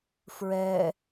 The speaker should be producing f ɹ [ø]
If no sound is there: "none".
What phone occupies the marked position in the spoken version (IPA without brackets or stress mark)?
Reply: ɛ